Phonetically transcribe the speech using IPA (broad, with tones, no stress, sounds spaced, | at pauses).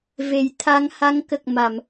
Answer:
v e˨˩˦ j t̪ʰ a˧˥ ŋ h a˧˥ ŋ k ə˨˩ k̚ m a˨˩˨ m